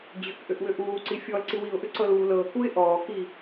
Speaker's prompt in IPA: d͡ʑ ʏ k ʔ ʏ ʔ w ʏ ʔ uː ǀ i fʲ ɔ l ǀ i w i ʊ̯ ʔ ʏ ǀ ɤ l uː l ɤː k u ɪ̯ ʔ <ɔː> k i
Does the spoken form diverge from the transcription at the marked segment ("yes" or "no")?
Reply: no